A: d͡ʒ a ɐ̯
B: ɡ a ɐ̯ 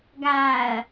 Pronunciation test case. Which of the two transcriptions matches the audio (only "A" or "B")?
B